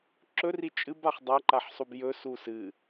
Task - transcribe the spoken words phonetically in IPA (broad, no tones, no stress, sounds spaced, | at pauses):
ǁ ɵ r i t͡ʃʼ ɨ b a χ dˤ a ǃ a ħ sˤ u b j ɵ s u s ɨ